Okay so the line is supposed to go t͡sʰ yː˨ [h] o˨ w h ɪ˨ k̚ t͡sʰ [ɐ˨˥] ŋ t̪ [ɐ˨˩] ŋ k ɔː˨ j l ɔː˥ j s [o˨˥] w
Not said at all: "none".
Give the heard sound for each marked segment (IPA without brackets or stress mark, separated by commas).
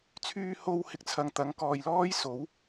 h, ɐ˨, ɐ˨˥, o˨˥